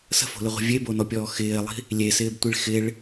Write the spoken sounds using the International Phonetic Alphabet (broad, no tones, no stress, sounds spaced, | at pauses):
s ə̤ f o̤ l ɪ ʁʷ i̤ vʲ e b o n ɔ pʲ ɔː x ɪː lˠ i̤ | lʲ e s ɪː b tʷ i ɭ x ɪ ɭ